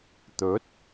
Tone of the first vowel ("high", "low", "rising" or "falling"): rising